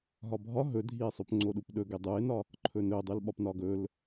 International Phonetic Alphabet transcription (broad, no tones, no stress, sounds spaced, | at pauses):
ɦ ɒ bʱ ɒ ɦ ɵ dʱ i e̯ sˤ o p ŋ͡ǀ o ɗ u p ɗ ɵ ɡ e dˤ u e̯ n ɒ | ǃʰ ɵ n ɵ dˤ ʉ l ɓ ɒ p n ɒ ɡ ɵ l